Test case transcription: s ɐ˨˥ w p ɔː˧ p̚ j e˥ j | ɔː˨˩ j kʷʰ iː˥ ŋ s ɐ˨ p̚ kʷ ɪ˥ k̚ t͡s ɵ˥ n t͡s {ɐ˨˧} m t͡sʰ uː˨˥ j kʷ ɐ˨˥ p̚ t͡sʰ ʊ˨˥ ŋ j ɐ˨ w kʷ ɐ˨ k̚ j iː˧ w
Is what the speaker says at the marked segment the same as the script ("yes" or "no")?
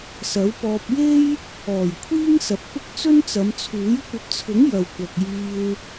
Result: yes